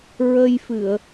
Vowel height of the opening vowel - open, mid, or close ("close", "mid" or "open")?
mid